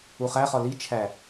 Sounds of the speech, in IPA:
uχæχɒ li t͡ʃʰæ

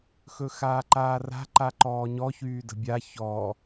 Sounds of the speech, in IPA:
xɵxaːǃaːra̤ ǃaǃɔːɲɔ çyːdə̤bʲa çɔ

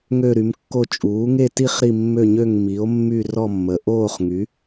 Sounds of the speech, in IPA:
ŋø˥˧ɾy˩˥mkːo˥˧ t͡ʃʼuː˩˥ŋe˥˧ti˥˧χ ɾi˥˧mːø˥˧ɲø˥˧ŋ mi˩˥o̯ mːy˥˧rɔ˥˧mːə˩˥ ʔoː˥˧χŋy˩˥

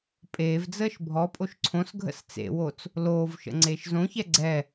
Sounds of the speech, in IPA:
pʼeːvd͡zəːʃ bʱɔpʼoʃ ǀʰõsɡʱə̰s t͡sḛwot͡s | loːvʃə̰ ŋ͡ǀeːʃzõçɛ ɡ͡ǀɛ

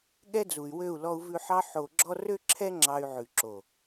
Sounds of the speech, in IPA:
ɠɛ˦d͡zu˨y̯wø˦˨u̯ lɔ˧u̯vʉ˧ħɑ˦ ħo˧ ɡ͡ǁɔ˦ rø˦ǁʰɛ˦ ŋ͡ǁɑ˧y̯ʕʉ˨ǁo˨

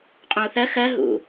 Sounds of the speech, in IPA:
qʼõu̯θɜ xɜ ɦṵ

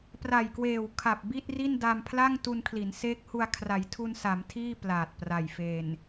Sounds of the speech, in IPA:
pra˨˩jkweː˨˩wkʰa˨˩p̚ bi˥˩t̚ri˥˩n da˧mpʰla˥˩ŋ tu˧nkʰli˩˦nseː˦˥k̚hu˧a̯ kʰra˩˦jtʰu˧nsa˩˦m tʰiː˥˩plaː˨˩t̚pra˨˩j fe˨˩n

